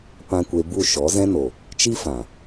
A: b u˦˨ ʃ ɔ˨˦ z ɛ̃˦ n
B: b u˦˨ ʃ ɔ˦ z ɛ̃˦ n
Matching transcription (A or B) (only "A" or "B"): A